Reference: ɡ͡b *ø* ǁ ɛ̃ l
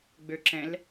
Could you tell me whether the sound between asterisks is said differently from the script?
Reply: no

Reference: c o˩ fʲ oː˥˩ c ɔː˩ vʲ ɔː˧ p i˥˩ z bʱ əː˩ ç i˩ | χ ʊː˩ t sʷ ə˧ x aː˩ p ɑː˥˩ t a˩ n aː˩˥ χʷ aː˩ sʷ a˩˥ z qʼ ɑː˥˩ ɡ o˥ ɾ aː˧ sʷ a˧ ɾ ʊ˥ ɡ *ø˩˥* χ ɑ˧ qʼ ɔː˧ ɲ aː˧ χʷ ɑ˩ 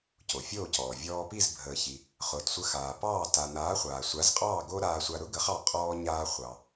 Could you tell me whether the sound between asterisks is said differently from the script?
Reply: yes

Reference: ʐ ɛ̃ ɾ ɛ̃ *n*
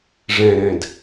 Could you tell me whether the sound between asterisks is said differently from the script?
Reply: yes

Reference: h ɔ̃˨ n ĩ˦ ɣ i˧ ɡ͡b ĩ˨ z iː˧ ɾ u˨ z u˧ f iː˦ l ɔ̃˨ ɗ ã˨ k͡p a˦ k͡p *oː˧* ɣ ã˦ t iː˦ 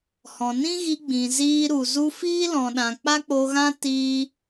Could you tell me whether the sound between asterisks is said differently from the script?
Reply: yes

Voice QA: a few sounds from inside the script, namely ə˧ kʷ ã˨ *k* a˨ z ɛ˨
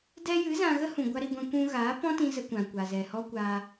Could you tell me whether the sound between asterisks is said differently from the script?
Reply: yes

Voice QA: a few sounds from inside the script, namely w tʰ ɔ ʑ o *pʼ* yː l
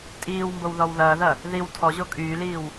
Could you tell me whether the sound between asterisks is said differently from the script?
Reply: yes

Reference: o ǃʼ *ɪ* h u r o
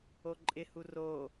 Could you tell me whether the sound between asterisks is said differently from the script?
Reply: no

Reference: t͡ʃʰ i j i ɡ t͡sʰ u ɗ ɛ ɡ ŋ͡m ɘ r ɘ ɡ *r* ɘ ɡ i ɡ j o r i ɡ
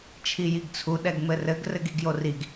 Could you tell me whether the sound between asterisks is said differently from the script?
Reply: no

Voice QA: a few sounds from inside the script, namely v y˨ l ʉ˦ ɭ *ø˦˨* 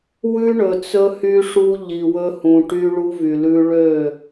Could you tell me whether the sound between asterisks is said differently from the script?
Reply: no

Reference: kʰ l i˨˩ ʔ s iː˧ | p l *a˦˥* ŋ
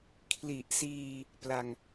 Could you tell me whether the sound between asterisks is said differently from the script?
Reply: yes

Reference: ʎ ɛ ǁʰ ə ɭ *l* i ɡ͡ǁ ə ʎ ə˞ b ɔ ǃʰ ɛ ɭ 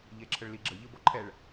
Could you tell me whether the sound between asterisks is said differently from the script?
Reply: no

